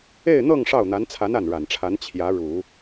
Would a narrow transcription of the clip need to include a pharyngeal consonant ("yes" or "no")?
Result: no